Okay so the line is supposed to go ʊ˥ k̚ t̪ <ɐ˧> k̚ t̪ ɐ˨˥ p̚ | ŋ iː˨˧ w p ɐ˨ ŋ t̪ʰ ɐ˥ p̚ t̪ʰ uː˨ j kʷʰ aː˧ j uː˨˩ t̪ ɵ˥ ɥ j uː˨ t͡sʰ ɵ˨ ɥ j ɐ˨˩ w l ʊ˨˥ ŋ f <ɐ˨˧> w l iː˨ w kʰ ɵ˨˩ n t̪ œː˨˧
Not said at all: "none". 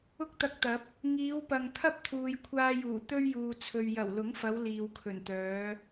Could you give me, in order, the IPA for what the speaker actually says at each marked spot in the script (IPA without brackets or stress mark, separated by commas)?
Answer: ɐ˧, ɐ˨˧